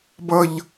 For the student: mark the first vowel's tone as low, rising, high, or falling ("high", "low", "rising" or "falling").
low